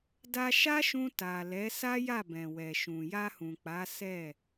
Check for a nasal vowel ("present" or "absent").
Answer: present